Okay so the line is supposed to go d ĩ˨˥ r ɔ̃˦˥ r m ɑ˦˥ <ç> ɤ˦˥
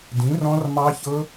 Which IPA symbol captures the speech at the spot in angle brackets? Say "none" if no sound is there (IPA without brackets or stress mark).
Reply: ç